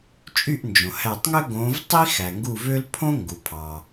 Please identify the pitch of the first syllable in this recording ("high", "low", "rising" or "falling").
falling